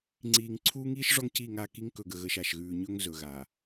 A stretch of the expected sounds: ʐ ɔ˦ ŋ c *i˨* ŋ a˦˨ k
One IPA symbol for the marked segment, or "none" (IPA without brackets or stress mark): i˦˨